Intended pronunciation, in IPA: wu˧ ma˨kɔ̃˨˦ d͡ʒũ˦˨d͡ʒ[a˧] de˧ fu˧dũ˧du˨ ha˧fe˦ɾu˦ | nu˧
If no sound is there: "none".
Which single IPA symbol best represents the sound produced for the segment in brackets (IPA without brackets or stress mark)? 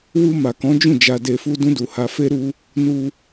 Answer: a˧